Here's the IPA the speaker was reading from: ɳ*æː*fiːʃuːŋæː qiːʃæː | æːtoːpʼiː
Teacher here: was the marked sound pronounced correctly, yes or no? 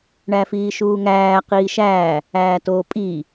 no